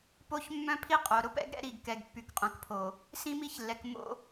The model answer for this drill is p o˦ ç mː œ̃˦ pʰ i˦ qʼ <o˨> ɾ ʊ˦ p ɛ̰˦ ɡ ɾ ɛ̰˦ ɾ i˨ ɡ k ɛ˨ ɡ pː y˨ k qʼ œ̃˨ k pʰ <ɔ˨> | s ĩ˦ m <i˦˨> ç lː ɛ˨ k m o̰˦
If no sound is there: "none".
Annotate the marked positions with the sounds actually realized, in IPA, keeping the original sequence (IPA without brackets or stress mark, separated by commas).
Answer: o˨, o˨, i˦